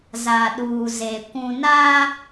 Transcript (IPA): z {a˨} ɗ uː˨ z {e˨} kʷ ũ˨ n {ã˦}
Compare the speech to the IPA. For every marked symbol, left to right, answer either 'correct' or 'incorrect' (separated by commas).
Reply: correct, correct, incorrect